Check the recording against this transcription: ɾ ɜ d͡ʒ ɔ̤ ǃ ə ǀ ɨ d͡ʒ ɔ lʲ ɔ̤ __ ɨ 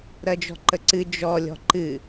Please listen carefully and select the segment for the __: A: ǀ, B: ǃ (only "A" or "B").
B